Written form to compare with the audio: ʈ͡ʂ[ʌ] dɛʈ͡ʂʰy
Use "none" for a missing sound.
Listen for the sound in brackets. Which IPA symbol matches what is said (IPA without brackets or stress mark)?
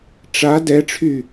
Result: a